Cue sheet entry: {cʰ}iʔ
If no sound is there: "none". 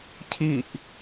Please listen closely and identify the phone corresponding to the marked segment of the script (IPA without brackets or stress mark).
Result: cʰ